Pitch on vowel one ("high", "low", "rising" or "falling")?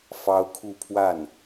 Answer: high